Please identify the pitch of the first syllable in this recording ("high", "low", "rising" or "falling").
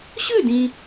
falling